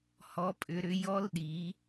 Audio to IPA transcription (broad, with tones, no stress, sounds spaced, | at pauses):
h ɔ˦˥ pʼ ʏ˦˥ ɾ ʏ˦˥ j ɔ˦˥ l ɗ i˨˦